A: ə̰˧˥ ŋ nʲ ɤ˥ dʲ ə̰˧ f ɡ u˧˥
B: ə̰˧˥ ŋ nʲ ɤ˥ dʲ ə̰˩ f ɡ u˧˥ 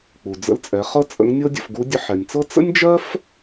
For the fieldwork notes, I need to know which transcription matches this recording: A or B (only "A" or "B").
A